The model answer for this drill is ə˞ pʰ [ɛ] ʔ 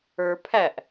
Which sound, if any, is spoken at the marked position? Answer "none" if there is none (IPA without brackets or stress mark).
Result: æ